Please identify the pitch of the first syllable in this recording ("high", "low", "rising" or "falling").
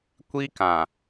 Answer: high